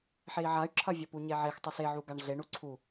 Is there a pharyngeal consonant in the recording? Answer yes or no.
yes